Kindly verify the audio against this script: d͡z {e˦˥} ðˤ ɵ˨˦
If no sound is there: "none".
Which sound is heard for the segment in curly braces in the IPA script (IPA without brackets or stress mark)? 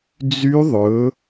y˦˥